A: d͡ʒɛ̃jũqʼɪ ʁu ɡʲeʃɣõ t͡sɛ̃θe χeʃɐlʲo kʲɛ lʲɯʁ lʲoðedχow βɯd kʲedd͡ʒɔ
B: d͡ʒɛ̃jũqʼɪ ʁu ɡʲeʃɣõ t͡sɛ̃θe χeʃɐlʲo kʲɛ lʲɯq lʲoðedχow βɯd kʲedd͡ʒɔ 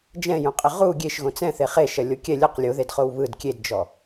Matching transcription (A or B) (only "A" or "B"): B